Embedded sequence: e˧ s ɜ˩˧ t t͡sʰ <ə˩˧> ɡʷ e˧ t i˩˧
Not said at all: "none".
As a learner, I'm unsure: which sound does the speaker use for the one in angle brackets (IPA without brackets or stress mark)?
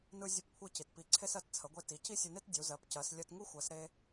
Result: ə˩˧